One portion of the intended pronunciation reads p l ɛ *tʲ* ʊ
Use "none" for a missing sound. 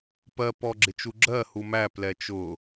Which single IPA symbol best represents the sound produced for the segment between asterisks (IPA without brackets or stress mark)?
t͡ʃ